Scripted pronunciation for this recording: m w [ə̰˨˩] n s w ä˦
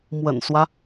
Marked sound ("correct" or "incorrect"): correct